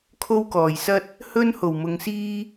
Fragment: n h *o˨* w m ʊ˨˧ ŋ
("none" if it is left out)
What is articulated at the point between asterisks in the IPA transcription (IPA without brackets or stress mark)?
o˨˩